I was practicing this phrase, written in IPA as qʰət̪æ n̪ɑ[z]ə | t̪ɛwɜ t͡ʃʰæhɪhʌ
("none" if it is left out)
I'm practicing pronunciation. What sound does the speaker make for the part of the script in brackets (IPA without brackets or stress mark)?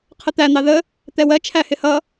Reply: ð